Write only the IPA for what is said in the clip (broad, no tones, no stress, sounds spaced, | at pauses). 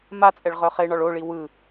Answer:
m a t͡sʼ ɛ ɭ ʁ œ χ e ɳ ɒ ɭ o ɭ i w ɯ